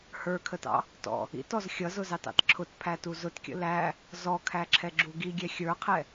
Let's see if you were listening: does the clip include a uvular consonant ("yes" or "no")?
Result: yes